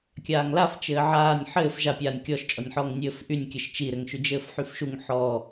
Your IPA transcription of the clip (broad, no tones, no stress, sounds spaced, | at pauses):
kʲ aː ŋ l a f t͡ʃ ɘː ʕ aː nʲ ħ ɘː f ʒ a pʲ aː nʲ kʲ ɔ ʃ t͡ʃʼ ɔ nʲ ħ ɔː ŋ nʲ ɘː f ʔ y nʲ kʲ ɘ ʃ t͡ʃ i ɾ ɘ ŋ ʃ y d͡ʒ ɘː f ħ y f ʃ u ŋ ħ ɔ